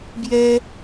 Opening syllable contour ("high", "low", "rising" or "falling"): high